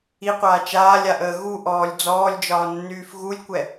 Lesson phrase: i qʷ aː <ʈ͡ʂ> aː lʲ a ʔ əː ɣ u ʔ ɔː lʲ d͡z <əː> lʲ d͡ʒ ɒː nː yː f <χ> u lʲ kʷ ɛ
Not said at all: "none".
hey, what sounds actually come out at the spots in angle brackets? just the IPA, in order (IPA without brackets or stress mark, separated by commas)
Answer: t͡ʃ, ɔː, ɣ